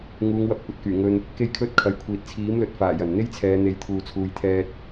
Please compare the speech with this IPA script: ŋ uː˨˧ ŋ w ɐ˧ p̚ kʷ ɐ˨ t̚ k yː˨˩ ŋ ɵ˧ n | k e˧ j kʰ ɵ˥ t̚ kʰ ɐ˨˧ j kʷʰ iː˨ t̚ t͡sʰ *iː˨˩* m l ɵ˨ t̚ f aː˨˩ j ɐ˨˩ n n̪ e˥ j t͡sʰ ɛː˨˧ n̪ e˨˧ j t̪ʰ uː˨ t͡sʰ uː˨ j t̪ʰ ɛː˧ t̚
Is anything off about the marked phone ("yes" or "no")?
yes